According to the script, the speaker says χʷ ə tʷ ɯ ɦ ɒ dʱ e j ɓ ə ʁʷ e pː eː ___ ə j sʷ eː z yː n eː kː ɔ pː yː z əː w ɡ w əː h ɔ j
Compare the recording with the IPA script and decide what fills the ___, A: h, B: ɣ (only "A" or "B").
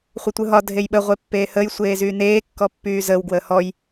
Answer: A